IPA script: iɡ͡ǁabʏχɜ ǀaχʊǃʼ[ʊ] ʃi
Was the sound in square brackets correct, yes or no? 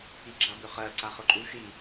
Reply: no